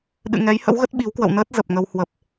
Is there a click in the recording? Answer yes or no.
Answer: no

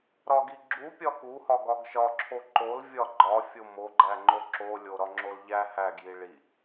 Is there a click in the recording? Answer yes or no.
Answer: yes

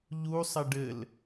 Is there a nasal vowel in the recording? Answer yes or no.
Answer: no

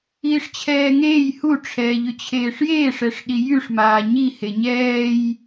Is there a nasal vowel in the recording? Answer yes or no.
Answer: no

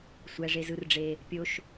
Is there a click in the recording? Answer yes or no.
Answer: no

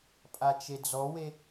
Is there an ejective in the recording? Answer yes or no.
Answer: yes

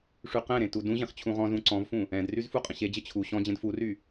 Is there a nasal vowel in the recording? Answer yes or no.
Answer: yes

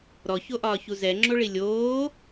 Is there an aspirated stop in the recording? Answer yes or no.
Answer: no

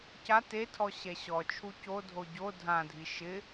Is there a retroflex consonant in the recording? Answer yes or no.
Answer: no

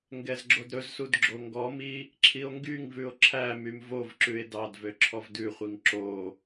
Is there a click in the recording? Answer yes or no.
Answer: yes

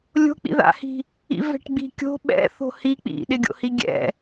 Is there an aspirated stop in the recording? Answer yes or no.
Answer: no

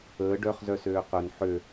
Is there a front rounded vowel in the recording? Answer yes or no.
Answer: yes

